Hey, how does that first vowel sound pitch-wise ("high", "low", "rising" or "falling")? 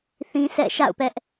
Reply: high